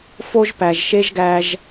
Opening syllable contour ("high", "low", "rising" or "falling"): high